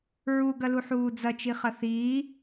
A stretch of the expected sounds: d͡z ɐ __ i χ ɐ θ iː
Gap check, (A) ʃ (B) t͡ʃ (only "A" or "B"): B